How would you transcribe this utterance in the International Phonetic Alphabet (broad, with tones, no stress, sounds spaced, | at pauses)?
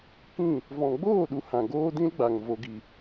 k ĩ˦˨ | v ɔ̃˨ ɡ͡b oː˦˨ ɗ u˨ h ã˨ ɡ oː˦ d ĩ˦ l ɡ͡b a˨ ŋ v o˨ ɡ i˨